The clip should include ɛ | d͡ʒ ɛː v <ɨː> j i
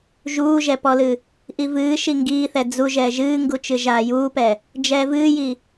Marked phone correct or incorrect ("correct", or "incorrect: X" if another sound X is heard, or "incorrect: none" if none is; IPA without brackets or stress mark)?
correct